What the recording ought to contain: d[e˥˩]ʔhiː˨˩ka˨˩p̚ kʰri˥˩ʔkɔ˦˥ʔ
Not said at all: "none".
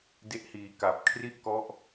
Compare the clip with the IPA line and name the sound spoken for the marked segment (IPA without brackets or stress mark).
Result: e˦˥